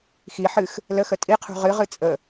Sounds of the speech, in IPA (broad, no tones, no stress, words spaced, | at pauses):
xi ħɨx | ləxə tʼiqʰṳ ʁɨʁɨ t͡sʼə